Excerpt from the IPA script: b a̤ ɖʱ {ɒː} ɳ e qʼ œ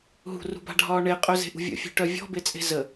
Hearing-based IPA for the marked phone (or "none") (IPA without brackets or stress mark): ɒː